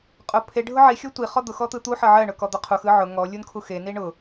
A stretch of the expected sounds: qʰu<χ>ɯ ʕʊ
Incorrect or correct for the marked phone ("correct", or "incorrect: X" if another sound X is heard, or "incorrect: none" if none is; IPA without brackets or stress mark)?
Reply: incorrect: x